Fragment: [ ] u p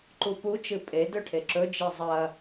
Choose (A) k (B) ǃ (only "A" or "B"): B